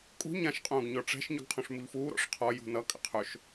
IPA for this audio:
kʼ ṳ ɲ ã ʃ qʼ ũː ɡ ɲ ɔ ʈ͡ʂ ɛ̤ ʃ ɲ ʏ ɡ qʰ ũ ʂ m u ʎ f uː ɾ ɔ̰ ʂ qʰ ɔ j ṳ n ʌ kʼ ə̰ qʰ ɵ ʃ

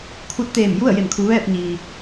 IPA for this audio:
kʰ u˧˥ t̚ t̪ eː˧˩ m j u˥˨ ə̯ j e˧˩ m kʰ u˩˧ ʋ ɛː˥˨ p̚ ɲ iː˩

